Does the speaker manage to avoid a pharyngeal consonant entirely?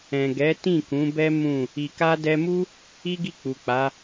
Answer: yes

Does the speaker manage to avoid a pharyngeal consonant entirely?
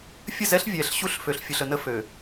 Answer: yes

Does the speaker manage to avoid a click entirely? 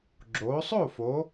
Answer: no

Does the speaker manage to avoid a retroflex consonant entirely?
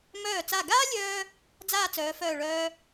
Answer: no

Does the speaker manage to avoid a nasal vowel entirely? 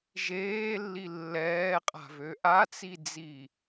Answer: yes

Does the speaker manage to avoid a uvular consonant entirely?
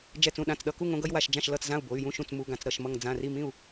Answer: yes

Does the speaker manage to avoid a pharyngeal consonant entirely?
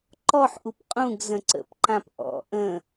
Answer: no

